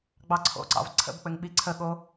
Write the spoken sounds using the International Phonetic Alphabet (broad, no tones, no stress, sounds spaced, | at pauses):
ɡ͡b ɑ ǀʰ o̰ ǀ ɑ̰ v ǀʰ ə̰ b k͡p ɘ ŋ ɓ i ǀʰ ə ɠ o